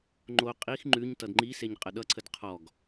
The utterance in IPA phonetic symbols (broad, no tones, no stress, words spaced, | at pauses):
ŋ͡ǃo qʼix ŋ͡ǃʉɲ tʌdŋ͡ǃiseɲ qʼəɗʌǀʰəd qʰɔɡ